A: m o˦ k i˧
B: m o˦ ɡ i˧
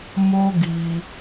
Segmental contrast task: B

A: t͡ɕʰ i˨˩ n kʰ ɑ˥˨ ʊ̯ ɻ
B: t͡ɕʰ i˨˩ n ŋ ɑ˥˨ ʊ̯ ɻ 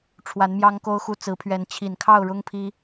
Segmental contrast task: A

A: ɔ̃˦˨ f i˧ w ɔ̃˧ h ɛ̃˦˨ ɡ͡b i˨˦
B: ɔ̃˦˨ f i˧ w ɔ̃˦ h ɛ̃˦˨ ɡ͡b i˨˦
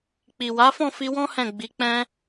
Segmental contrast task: B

